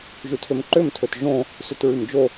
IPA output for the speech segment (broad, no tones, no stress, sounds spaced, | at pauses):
ʒ ʉ tʰ ø m ǃ ø m tʰ ɵ t ʒ õ | s ʉ t ɹ ʉ m d͡ʒ o